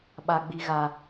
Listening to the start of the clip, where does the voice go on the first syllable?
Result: high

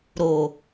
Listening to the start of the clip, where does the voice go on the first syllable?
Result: low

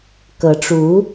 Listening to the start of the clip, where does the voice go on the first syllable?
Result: rising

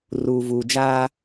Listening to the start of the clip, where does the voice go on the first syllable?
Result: low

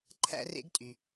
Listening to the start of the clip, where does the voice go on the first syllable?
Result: high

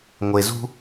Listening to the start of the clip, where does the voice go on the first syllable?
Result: low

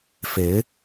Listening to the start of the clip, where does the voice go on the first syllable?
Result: rising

